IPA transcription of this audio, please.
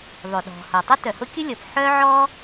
ðˤ ø˩ ɗ ɔ̤˩ h ʊ˩ tˤ ʊ˥ t œ˩ h ʊ˥ kʲ ʊ˥ lʲ ɔ˩ p ħ œ˥ ʕ ɔ˥

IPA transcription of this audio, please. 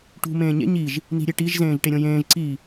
ʈ ṳ m ẽː ɲ ḛ ɲ i ʒ | n i̤ ɾʲ e ʈ i ʒ z ẽː ʒ ʈ e ɾʲ õ j ẽː ʒ ǀ i

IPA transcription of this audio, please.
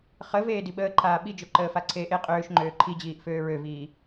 χ ə v eː d i ɓ əː ǃʰ aː ɓ i d͡ʒ ø ǃ əː f a ǀʰ eː ʔ e qʼ øː ʃ ŋ͡ǃ øː ǃʰ i d͡ʑ iː ʔ f øː ɹ ø v iː

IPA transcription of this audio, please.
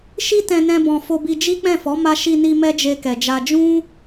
ʃ i˦ t ɛ̃˧ n ɛ̃˧ b ɔ̃˨ f o˧ b i˧ d͡ʒ i˦ k͡p ɛ̃˦˨ f ɔ˨˦ m a˧ ʃ i˧ n i˧ m ɛ˦ d͡ʒ e˧ k ɛ˨ d͡ʒ a˧ d͡ʒ ũ˦

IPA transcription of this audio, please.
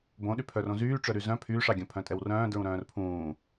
b õ ɗ y pʰ œ r õ z yː ʈ͡ʂ œ ɾ y z œ̃ pʰ yː ʂ ɑ ɡʲ œ̃ pʰ œ̃ tʼ ɛ w r œ̃ː d ɹ ũ ɾ œ̃ː r pʰ ũː

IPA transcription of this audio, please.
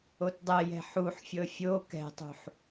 o t dˤ ɛ j ɛ̤ ħ u ħ fʲ ɤ fʲ o k ɛ̤ tˤ ṳ ħ

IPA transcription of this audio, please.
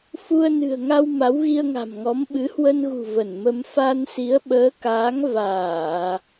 f u˧ ə̯ n ɨ̤˨˩ ə̯ ŋ a˧ w m a˨˦ w ɣ i˧ ə̯ ŋ a̤˨˩ m ŋ ɔ˨˦ m ɓ ɨ˨˦ h w ə˧ n ɣ ṳ˨˩ v ə˧˩ n m ə˧ m f a˧ n s i˨˦ ə̯ ɓ əː˨˦ k aː˨˦ ŋ v aː˧˩˨

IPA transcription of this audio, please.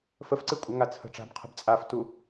f ə f ǀ ɨ kʷʼ ə ŋ a t͡sʰ ə̤ ʈ͡ʂ a̤ b qʰ ə̤ b t͡sʼ a f t u

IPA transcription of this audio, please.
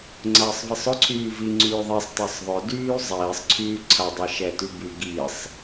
ŋ͡ǀ ɐː sˤ v i sˤ ʊ ǀʰ yː v i ŋ͡ǀ yː ðˤ i sˤ t a sˤ ðˤ ʊ d yː zˤ iː sˤ ǀʰ yː ǀʰ ɐ dˤ ɛ ʃ ɛ t y b y ɡ i sˤ

